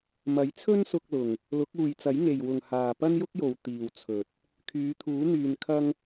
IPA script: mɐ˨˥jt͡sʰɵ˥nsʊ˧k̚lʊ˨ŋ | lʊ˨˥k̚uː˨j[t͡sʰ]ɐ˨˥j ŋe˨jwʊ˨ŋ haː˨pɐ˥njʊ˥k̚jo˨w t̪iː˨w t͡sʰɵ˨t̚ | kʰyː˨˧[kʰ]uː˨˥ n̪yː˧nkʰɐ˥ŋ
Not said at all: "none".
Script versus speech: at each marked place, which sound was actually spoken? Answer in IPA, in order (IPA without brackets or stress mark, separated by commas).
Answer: t͡s, t̪ʰ